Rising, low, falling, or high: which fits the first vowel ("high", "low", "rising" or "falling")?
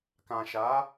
low